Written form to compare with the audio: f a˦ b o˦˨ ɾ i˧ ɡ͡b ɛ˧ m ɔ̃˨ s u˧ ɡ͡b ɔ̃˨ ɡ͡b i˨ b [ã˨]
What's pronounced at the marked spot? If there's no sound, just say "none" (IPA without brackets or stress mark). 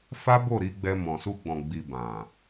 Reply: ã˨